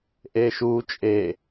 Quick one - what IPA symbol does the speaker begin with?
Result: ʔ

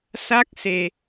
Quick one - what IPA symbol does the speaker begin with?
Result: s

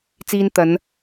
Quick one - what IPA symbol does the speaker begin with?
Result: t͡s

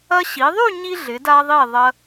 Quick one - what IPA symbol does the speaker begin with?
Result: ɐ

